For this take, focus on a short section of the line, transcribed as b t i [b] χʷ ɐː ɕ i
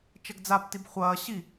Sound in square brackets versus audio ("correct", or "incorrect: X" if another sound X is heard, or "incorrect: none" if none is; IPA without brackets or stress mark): correct